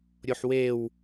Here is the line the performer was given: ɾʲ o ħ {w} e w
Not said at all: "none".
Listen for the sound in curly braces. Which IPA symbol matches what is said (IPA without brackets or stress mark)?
w